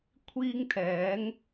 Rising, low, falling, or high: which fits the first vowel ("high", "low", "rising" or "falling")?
high